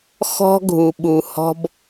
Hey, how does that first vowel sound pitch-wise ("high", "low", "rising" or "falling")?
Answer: high